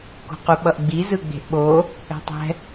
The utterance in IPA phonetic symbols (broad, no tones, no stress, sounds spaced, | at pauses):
k o̤ q u ɓ ʌ ʔ ɡ͡b i z ɯ ɡ͡b e̤ ʔ ɓ o | ɛ̤ tˤ ɛ̤